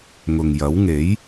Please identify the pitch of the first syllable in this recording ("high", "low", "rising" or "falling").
low